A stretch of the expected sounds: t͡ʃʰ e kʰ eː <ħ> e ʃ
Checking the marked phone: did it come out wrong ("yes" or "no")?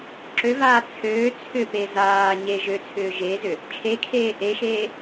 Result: yes